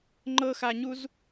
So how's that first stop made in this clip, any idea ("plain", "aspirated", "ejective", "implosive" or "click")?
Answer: click